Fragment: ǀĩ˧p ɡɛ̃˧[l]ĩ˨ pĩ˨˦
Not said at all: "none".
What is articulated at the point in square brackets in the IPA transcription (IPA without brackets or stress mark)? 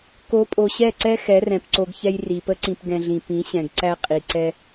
ɮ